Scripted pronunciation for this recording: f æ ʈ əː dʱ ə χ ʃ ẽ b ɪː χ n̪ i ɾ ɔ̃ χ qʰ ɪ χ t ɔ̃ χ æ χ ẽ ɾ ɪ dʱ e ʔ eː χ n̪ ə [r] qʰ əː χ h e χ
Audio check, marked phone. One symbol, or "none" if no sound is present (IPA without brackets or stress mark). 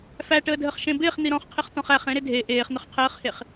χ